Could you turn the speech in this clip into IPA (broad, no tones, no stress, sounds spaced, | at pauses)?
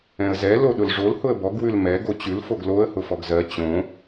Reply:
ɛ̃ ə̯ z ɛ l o ɗ ʊ l ʐ o l h ʊ ə̯ b ɔ ɡ w ʉ l m ɛ ɡ o t͡ɕ ʉ l f o ɡ l o ə̯ h ʊ f ɔ ɡ z ɜ t͡ɕ õ